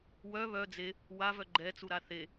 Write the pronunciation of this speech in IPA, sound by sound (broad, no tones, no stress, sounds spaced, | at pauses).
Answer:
w œ β œ d͡z e | w a v œ ɡ͡ǃ ɛ t͡s u ɾ a θ e